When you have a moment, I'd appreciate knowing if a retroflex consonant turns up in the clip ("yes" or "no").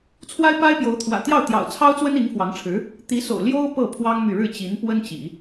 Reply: yes